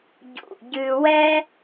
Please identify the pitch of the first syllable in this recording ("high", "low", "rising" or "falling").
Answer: low